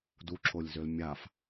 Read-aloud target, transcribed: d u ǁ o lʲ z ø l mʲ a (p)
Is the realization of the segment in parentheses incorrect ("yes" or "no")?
yes